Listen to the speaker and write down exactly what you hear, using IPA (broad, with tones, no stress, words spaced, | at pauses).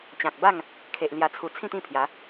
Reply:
t͡ɕã˨k̚ba˥˧ŋ | kʰe˨ʔ lja˨˩t͡sʰu˨˩ t͡sʰĩ˥˧t̪ĩ˥˧pʰja˨˦